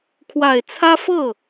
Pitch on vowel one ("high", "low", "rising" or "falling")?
low